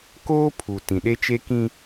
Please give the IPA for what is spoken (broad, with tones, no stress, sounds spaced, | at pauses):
k oː˦ pʰ u˨ t ĩ˨ ɗ e˦ t͡ʃ e˦ k ĩ˦